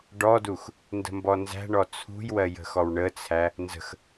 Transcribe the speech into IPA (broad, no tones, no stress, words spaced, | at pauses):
ɖɔdux | ndə̤mbɔnzæ̤ɳɔ t͡sʰṳjwɜ jə̤xɔwɳət͡sʰæ | nzə̤x